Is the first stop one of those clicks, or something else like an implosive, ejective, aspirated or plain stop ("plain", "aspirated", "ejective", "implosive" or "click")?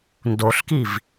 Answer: plain